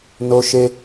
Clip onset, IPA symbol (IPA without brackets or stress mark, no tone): n